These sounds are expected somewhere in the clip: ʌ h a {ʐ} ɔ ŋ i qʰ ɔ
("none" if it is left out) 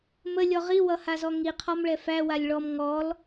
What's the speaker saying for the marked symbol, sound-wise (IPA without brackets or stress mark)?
z